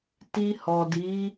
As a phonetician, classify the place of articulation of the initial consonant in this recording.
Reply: alveolar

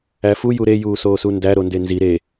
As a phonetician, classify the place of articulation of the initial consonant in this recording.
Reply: labial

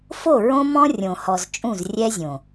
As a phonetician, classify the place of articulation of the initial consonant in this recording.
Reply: labial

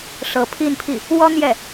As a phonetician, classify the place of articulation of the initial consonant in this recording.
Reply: retroflex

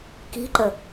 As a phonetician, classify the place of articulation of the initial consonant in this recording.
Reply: velar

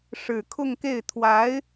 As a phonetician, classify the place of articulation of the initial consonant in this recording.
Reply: retroflex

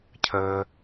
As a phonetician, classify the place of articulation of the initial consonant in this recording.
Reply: palatal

